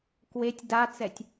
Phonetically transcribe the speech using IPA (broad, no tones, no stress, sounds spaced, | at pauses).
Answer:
k w e tʲ d a t͡s ɛ tʲ